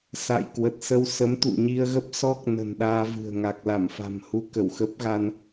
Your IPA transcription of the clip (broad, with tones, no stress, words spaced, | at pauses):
sa̰ː˧˨jkwə˨˩t̚sə˧w sə˨˦mt̪ṵ˧˨ɲi˧ə̯ɣə˦˥p̚ sɔ˦˥k̚ nə̤˨˩nɗaː˧vɨ̤˨˩ə̯ ŋa˨˩k̚la˧˩mfa̤˨˩m hu˧kə˧˩wxə˦˥p̚ɣa˧n